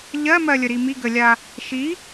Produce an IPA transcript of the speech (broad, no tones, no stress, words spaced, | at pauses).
ʎɜmɜlʲəɾi miɡəlʲa | ʃi